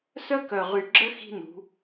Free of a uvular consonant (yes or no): no